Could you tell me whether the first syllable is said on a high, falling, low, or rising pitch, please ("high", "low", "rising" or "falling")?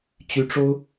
high